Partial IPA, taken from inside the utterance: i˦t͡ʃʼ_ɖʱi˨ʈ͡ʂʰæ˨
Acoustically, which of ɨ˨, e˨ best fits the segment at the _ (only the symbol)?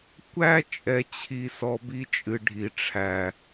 ɨ˨